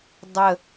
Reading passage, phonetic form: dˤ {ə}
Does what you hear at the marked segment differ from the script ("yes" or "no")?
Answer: no